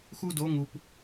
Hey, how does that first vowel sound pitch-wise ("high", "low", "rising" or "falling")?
high